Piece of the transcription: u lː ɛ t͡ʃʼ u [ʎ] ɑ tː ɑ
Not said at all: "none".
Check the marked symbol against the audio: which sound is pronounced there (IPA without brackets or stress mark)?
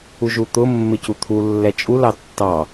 l